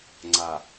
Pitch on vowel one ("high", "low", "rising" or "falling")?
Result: low